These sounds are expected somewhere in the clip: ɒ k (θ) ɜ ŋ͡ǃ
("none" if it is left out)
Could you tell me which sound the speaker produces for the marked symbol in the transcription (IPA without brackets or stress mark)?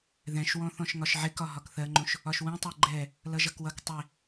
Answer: θ